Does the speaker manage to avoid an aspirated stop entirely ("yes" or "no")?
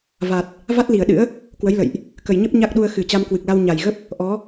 yes